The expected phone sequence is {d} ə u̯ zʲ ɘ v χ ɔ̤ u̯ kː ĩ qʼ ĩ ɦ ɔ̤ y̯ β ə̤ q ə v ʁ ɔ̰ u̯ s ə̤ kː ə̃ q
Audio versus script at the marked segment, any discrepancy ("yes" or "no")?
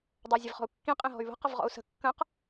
yes